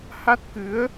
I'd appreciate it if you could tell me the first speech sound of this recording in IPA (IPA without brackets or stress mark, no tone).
h